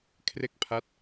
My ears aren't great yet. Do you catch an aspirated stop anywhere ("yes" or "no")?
yes